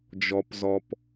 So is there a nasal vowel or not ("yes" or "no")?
no